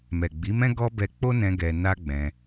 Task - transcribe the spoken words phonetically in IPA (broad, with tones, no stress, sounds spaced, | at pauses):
m ɛ˨ ɡ͡b i˨˦ m ɛ̃˦ ɡ ɔ˦ b ɛ˧ k͡p o˦ n ɛ̃˧ ɡ ɛ˧ n a˦ ɡ͡b ɛ̃˧